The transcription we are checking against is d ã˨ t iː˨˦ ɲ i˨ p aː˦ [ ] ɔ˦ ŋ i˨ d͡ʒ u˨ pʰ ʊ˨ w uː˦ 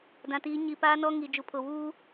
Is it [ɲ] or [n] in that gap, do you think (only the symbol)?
n